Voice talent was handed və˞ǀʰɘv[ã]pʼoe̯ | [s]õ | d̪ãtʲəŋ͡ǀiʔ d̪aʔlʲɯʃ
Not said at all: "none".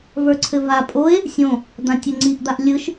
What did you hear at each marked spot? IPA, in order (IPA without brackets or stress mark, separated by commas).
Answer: a, sʲ